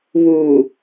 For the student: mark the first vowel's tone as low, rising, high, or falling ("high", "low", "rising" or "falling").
low